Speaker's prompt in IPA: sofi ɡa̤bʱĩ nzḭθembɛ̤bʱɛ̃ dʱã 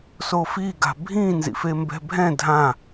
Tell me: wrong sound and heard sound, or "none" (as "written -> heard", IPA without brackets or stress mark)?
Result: θ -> f